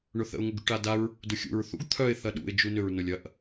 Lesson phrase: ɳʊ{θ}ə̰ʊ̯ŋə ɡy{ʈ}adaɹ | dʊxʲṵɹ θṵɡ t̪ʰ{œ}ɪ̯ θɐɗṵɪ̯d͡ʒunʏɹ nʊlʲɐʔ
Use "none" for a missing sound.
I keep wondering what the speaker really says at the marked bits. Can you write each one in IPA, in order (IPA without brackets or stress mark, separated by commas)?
θ, ʈ, œ